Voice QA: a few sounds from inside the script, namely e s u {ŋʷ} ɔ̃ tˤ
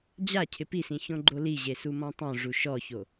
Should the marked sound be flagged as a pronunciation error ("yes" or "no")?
yes